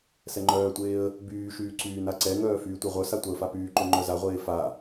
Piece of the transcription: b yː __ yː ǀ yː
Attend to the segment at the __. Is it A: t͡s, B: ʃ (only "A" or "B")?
B